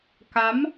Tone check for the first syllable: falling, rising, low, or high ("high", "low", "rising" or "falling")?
rising